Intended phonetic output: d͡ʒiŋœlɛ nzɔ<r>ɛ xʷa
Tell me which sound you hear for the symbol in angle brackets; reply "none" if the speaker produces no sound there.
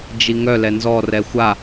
r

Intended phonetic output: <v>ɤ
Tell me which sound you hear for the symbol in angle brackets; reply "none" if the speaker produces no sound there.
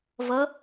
v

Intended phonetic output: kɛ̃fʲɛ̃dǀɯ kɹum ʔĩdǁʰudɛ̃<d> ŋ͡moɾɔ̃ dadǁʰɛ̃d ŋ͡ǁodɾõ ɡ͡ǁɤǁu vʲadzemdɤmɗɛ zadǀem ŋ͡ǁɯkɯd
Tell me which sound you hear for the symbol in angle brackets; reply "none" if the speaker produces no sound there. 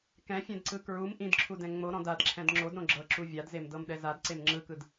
none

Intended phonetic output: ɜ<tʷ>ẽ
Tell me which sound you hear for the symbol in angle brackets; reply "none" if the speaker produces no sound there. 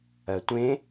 tʷ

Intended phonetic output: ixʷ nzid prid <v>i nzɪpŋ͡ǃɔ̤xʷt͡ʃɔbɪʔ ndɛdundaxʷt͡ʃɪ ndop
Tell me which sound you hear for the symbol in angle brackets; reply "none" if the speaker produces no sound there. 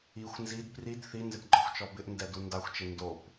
θ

